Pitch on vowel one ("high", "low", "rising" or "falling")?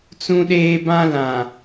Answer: high